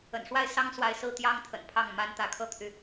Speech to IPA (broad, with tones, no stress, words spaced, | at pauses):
ə̰˨˩nʂwa˥˩ɪ̯sɑ˥ŋ swa˥˧ɪ̯ sɹ̩˥˩t̪jɑ˥ŋt̪ʰə̰˨˩n pʰɑ˥˩ŋma˥n t̪ä˧˥kʰɤ˥˩t̪ʰy˩